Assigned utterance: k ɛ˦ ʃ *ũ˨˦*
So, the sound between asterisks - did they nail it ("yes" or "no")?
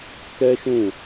no